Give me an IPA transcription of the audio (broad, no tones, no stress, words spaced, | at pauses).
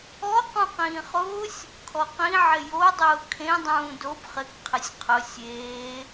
ɔ qũqĩːχʊːsʲ | kʰɔqĩ ʕɪjo dˤʊːkʰẽ dˤũːdob χɪk qʰɪsʲqʰʊ sʲeː